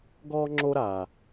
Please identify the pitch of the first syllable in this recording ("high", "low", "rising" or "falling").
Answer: high